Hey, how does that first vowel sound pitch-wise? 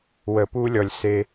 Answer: low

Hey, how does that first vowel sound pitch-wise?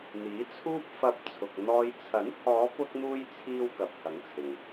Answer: rising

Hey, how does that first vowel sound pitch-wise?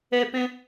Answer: high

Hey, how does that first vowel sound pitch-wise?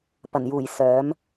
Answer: low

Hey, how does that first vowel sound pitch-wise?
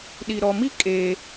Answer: low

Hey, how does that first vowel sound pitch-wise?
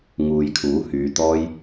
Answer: low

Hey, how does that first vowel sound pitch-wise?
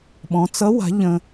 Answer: rising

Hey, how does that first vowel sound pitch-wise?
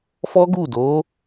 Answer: high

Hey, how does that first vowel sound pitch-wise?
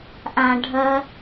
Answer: high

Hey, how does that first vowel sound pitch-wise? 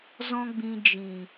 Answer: high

